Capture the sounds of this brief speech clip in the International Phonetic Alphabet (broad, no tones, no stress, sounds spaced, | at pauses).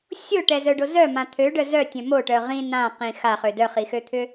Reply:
sʲ o ʈ ɛ z œ ɖ o z œ m ã t̪ʰ ø ɖ œ z œ tʲ œ̃ m o ʈ œ ʁ ĩ n ã q ĩ x a χ ø d œ χ i x ø t̪ʰ ʏ